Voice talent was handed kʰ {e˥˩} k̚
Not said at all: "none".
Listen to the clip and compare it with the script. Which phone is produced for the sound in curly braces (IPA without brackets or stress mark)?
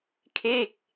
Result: eː˥˩